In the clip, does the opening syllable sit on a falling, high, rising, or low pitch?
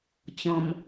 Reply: low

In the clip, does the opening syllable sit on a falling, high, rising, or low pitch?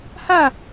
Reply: falling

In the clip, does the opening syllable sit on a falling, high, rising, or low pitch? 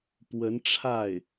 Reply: rising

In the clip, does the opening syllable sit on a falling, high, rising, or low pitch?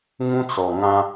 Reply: high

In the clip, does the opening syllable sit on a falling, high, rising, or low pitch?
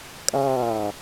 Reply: falling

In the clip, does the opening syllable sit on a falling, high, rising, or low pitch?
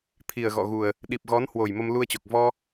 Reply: low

